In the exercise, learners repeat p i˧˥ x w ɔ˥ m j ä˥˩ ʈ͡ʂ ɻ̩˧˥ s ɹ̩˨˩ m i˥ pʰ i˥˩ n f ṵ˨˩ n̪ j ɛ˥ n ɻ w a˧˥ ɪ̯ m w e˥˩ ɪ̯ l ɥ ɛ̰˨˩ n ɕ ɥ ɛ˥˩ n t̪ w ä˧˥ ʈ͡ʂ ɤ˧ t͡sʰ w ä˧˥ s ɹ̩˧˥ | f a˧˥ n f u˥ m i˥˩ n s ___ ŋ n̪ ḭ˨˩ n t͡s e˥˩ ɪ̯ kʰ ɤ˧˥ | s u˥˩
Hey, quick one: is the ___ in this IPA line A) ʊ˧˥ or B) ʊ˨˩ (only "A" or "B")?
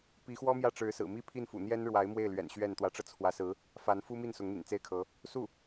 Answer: A